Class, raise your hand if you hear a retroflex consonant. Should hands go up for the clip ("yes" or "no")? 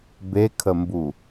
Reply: no